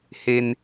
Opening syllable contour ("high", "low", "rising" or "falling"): high